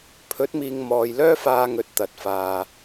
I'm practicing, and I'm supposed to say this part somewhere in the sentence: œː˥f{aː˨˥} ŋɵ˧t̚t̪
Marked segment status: incorrect: aː˧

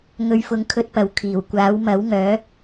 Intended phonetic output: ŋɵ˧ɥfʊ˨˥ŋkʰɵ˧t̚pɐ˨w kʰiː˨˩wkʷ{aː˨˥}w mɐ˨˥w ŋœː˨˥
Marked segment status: correct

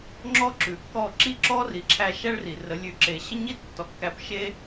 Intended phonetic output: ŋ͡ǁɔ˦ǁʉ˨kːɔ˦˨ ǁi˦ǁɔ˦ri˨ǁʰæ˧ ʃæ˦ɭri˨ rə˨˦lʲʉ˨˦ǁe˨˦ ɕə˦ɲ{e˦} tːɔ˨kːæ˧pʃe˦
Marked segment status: incorrect: i˦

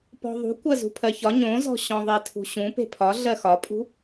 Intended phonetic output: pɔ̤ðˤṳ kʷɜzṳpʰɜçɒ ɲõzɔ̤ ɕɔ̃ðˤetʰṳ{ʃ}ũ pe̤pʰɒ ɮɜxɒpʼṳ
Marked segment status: incorrect: ɕ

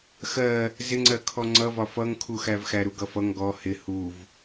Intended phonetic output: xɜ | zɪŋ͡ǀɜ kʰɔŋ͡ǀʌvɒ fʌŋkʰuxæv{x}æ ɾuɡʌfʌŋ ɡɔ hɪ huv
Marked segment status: correct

